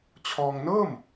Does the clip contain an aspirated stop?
yes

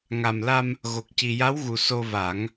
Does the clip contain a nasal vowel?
no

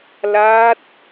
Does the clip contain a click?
no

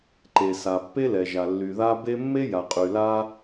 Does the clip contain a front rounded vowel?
yes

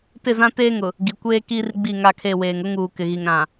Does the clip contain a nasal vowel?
yes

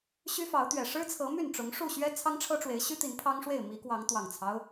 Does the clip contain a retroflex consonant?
yes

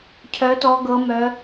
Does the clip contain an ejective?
no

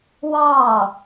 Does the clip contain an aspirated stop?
no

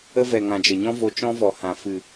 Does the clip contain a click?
no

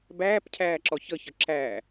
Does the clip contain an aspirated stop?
yes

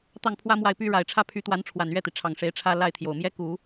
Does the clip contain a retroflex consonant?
yes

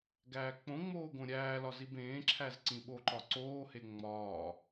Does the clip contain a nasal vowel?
yes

